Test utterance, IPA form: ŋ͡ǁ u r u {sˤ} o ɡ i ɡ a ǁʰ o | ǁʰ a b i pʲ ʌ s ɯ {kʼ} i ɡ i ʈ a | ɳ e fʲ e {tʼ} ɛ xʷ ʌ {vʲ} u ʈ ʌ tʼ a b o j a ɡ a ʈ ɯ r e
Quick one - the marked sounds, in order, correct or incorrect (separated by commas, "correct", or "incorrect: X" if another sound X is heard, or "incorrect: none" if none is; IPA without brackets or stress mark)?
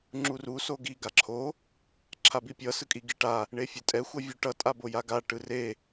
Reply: incorrect: s, correct, correct, correct